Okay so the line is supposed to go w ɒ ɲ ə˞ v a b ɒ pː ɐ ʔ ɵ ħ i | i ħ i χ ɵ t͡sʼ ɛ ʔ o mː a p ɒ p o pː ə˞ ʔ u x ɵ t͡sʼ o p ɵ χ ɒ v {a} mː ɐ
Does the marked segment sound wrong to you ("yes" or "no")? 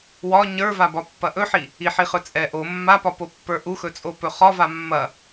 no